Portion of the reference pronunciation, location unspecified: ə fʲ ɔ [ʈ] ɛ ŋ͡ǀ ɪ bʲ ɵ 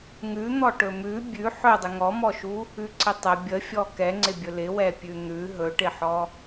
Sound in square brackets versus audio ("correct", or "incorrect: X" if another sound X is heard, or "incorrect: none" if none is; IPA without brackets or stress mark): incorrect: k